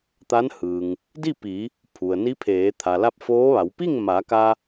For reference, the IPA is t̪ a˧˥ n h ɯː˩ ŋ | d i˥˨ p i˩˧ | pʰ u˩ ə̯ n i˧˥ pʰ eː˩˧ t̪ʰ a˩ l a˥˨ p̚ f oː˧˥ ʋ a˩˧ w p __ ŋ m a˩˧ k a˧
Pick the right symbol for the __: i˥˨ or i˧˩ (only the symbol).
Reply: i˥˨